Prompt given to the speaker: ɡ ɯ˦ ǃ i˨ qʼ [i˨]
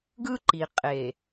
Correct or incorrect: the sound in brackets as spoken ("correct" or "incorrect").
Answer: incorrect